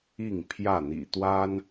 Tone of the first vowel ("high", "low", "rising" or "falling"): falling